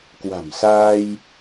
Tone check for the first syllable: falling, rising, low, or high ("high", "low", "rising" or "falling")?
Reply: low